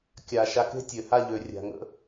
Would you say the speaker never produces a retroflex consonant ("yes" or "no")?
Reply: yes